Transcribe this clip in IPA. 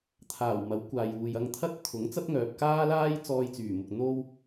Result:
t̪ʰaː˨˩w mɐ˨˥wkʷaː˨juː˨j ɐ˧ŋ t̪ʰɐ˥t̚t̪ʰʊ˨˥ŋ t͡sɐ˥t̚ŋœː˨p̚ kaː˥laː˥j t͡sɔː˧jt͡syː˨˩mʊ˨k̚ n̪o˥w

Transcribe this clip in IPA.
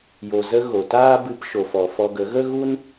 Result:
jo˨zə˧ ɣo˨taː˦ bɨ˧pʃo˨fɔ˨ fɔ˧ɡə˨˦ ɣə˦ɣu˦n

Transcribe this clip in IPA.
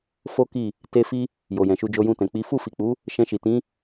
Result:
fo˦ki˦˨ | te˧ fi˧ | jo˨jɛ̃˨ʃu˧ d͡ʒo˧jũ˧tɛ̃˨ k͡pi˨˦ fu˦˨fi˨k͡pu˨˦ | ʃɛ̃˧ʃi˨ tĩ˨˦

